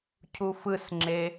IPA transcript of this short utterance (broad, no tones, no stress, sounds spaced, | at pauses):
cʰ u f ɯ s ŋ͡ǁ e